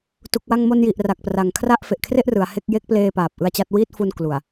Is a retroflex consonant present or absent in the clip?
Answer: absent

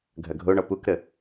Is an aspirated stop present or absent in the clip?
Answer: absent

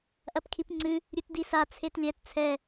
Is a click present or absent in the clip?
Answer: present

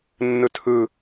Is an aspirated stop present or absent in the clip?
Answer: present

